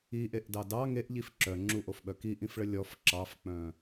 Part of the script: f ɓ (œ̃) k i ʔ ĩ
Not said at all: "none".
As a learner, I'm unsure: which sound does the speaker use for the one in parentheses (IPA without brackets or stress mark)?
œ